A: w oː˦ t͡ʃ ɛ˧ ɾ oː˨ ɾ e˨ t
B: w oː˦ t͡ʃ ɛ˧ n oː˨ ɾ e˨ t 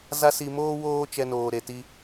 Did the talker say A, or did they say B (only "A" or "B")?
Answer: B